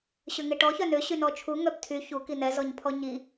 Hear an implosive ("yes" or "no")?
no